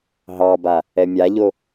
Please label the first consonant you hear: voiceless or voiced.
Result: voiced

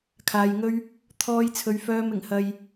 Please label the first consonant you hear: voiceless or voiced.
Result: voiceless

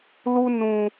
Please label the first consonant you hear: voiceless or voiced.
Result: voiced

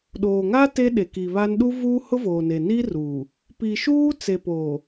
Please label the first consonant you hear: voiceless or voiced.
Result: voiced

